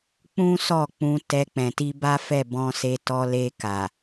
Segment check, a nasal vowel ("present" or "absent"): present